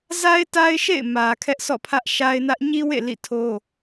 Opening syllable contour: high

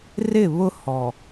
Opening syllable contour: falling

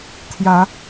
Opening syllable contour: rising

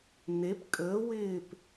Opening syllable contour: rising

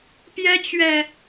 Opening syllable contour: high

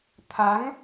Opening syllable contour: rising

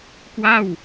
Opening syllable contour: falling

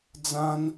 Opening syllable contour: high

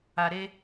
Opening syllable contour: low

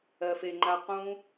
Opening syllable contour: low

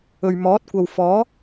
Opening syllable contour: low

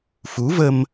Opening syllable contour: rising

